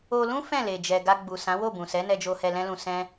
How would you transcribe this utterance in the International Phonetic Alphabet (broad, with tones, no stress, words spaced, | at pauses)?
o˧ lũ˦ fɛ̃˦˨le˨ d͡ʒɛ˨ɡa˧ ɡ͡bu˨ sã˨˦wo˦˨bũ˨sɛ˨˦ nɛ˧d͡ʒo˧hɛ˧ lɛ̃˦lũ˧sɛ̃˦